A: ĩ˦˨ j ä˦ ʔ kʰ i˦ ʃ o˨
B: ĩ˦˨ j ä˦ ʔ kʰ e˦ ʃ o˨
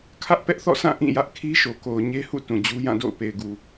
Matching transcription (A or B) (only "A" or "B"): A